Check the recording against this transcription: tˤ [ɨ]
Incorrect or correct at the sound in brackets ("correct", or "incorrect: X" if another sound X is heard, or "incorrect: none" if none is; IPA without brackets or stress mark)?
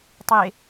incorrect: e